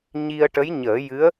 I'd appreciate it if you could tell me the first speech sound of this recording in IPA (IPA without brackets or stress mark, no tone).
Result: ɲ